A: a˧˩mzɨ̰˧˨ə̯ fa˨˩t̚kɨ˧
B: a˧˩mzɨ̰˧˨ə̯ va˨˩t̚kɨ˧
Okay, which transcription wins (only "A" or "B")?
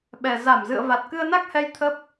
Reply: B